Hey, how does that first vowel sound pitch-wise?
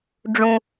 low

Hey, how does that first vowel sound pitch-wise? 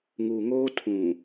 low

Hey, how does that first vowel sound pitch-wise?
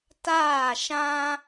falling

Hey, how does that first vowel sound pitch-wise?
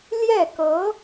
falling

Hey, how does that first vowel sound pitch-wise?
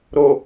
low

